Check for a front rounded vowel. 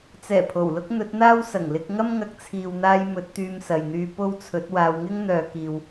present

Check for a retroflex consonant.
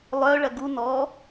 present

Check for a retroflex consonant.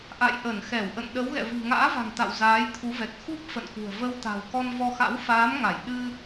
absent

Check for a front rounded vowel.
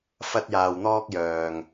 present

